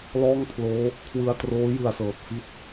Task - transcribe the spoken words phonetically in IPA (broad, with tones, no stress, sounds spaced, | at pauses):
l ɔː˥˩ ŋ pʰ l oː˦˥ | kʰ w ɯ˧ a̯ t r oː˦˥ j ɯ˨˩ a̯ s ɤː˨˩ t̚ f i˥˩ t̚